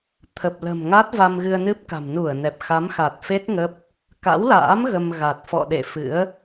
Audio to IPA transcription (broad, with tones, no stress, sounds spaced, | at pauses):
t̪ʰ ə˨˩ p̚ l ə̤˨˩ m ŋ a˦˥ t̚ v a˧ m ɣ ɨ˧ ə̯ n ɨ˦˥ p̚ k a̤˨˩ m n u˧˩ ə̯ n ɛ˨˩ p̚ x a˨˦ m x a˨˩ t̚ f e˦˥ t̚ ŋ ə˦˥ p̚ | k a̰˧˥ w l a̰ː˧˥ m ɣ ə˧ m ɣ a˨˩ t̚ f ɔ̰˧˨ ɗ ḛ˧˨ f ɨ̰˧˥ ə̯